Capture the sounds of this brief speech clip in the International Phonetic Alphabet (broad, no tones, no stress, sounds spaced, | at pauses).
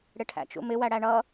ɽ ɪ ʈʰ æ̰ t͡ʃ ṵ m ɪ w æ ɽ æ ɳ ʌ